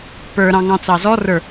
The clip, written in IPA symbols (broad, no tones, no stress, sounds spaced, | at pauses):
p ə˞ ɾ ɑ̃ ŋ ɑ̃ t͡s ɑ z ɔ r ə˞